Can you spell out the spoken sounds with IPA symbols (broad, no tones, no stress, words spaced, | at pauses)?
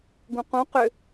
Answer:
ɡũqũ qʏ